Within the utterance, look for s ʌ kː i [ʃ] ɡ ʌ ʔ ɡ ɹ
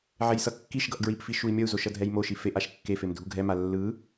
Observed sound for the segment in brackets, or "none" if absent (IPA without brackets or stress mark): ʃ